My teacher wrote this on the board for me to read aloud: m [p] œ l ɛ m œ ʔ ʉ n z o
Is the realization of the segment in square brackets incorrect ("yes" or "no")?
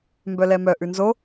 yes